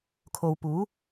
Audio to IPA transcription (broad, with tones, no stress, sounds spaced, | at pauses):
kʰ o˨ w p uː˨˥